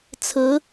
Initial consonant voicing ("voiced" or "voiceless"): voiceless